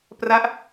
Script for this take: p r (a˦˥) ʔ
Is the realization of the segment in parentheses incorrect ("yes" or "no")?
no